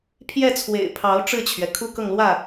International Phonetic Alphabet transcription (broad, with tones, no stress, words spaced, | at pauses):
pʰjɛ˥˩t͡sʰwḛ˨˩ɪ̯pʰɑ˧˥ʊ̯ ʈ͡ʂɻ̩˥˩t͡ɕʰɥɛ˩ kʰu˥kɤ˥˧ŋlwä˥˩